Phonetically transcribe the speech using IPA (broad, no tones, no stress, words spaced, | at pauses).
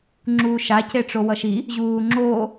ŋ͡ǁuːʃaceʈ͡ʂo wʌʃi | ʑuːŋ͡ǁoː